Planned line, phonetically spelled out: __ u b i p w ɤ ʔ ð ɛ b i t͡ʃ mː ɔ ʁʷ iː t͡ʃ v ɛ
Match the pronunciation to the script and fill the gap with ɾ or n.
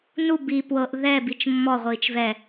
n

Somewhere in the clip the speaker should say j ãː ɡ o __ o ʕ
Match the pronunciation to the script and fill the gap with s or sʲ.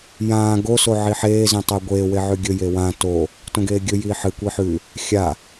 s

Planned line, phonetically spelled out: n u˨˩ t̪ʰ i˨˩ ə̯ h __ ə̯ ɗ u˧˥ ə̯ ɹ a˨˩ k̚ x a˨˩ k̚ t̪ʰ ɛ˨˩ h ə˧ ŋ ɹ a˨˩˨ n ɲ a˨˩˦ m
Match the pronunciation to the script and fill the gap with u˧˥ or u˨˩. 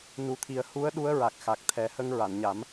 u˧˥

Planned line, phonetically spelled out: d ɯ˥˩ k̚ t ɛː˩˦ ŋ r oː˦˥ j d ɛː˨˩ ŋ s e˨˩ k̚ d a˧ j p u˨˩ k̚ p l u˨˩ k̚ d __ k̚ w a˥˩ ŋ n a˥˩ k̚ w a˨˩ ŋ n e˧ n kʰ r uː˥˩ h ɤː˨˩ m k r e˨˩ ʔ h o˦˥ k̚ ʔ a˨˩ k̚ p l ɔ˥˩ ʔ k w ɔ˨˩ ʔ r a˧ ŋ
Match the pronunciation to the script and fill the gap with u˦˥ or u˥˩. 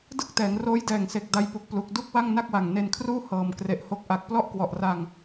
u˥˩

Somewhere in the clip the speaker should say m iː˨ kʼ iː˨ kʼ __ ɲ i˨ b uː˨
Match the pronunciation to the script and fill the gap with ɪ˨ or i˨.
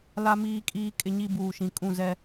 ɪ˨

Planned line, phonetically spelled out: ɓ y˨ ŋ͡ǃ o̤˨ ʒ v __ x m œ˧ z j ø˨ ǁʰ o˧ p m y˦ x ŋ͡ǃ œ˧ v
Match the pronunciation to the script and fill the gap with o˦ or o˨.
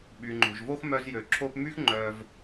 o˦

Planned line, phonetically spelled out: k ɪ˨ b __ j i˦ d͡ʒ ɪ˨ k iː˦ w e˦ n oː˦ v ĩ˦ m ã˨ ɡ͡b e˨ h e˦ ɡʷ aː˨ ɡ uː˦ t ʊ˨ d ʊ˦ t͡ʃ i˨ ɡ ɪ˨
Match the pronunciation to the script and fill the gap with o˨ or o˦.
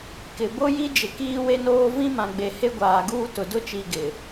o˦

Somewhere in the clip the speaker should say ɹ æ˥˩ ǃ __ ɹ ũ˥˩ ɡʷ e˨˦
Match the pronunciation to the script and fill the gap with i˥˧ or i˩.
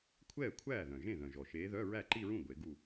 i˥˧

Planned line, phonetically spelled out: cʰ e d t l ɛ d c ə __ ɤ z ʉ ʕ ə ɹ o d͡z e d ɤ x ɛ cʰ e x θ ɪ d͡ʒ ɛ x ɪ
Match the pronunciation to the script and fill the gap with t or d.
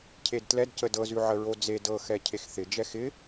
d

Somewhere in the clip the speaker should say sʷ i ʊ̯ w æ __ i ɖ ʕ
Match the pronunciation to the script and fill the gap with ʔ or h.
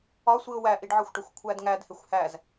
ʔ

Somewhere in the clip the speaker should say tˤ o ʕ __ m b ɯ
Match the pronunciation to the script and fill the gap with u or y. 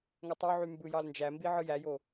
y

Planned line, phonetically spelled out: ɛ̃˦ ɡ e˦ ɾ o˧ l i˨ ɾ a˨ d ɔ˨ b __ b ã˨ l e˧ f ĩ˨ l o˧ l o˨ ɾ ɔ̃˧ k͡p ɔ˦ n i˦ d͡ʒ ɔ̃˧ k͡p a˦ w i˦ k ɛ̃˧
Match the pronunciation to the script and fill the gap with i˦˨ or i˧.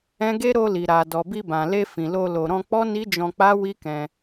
i˧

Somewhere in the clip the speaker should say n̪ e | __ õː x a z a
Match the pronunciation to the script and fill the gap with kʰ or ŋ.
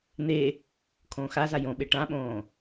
kʰ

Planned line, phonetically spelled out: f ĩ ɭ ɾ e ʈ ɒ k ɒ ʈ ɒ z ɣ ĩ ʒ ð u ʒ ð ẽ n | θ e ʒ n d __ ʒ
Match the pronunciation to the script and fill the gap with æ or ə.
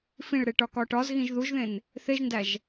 æ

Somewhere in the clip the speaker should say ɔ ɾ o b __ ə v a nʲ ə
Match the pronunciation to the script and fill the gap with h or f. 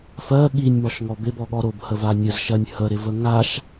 h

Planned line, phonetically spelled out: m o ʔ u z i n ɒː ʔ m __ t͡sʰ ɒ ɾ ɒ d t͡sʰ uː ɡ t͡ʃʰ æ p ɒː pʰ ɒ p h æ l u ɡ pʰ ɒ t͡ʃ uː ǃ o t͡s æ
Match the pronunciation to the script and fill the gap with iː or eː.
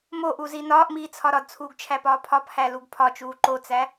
iː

